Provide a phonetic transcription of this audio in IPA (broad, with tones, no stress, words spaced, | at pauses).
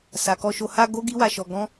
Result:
sa˨kɔ˧ʃo˧ ha˧ ɡo˦ɡi˦wa˧ʃɔ˧ ɡɔ̃˦